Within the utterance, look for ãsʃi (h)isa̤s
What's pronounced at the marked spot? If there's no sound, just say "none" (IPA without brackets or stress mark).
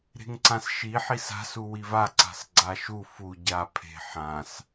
ħ